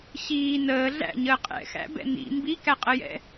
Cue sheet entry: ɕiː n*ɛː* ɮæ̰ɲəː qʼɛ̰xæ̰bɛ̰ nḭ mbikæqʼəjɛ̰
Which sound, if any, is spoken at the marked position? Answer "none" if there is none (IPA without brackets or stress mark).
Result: əː